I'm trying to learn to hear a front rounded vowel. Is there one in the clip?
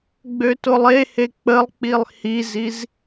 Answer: yes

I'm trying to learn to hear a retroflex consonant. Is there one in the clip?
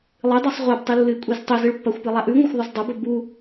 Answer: yes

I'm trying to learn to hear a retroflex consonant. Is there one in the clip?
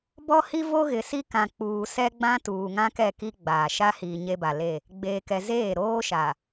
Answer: no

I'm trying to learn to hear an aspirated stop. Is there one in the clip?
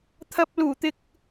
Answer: yes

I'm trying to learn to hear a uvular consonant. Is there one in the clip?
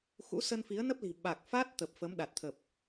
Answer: no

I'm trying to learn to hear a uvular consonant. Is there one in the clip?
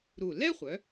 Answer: yes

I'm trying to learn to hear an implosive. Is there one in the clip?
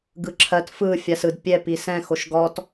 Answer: no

